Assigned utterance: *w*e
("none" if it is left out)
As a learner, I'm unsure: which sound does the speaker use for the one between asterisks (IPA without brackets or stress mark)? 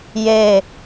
j